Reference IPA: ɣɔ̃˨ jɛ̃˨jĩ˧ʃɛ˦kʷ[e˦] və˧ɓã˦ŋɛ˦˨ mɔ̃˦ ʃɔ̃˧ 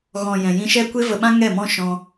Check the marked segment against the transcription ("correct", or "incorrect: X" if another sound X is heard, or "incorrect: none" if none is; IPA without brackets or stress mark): correct